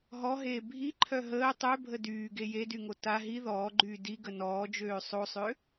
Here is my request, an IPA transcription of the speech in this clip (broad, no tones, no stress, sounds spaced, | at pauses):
ɦ ɔ ɦ eː bʱ i ǃʰ œ ɦ əː tˤ ø bʱ ə d yː ɡ e j e d y ŋ o t a ɦ i ð ɔː ɡ͡ǃ yː d i ɡ ə n ɔː d͡ʒ øː sˤ o sˤ ø